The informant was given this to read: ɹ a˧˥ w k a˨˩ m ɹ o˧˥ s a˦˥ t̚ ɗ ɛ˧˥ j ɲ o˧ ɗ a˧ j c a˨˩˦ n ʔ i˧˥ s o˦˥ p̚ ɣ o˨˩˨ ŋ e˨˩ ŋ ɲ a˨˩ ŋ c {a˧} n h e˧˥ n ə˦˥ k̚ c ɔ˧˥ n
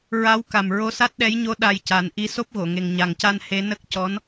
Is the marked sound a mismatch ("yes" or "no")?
no